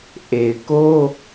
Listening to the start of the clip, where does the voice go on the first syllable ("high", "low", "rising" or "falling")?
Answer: low